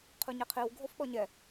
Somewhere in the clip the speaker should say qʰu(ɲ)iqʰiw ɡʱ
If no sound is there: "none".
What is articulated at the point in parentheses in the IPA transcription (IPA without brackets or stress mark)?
ɲ